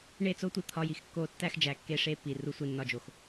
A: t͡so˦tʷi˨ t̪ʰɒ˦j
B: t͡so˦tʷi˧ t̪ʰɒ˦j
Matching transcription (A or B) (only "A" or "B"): B